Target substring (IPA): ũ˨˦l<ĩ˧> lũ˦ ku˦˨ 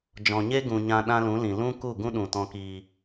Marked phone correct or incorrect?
incorrect